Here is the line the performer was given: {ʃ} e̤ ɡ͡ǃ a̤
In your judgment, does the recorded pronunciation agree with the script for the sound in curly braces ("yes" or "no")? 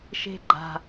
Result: yes